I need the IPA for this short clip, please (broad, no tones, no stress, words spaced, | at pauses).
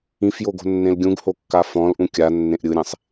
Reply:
ĩfjoɡo̤nːẽl ɡʲũɡhokːa fɔ̃lʔũ kʲa nːẽʔɾʲɯɾʲẽsˤ